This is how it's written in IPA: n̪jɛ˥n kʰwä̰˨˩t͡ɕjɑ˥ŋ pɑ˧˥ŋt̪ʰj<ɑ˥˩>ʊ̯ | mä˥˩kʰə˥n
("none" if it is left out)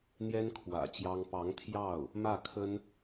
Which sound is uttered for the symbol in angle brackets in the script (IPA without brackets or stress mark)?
ɑ˥˩